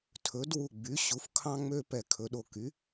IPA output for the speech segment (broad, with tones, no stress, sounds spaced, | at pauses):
tʰ ɵ˩˥ d w u˧˩ ɡ͡b y˩˥ ɕ u˩˥ f kʰ ɑ̃˦ ŋ͡m ø˦ p ɛ˧˩ kʰ ɵ˩˥ ɗ o˧˩ k y˩˥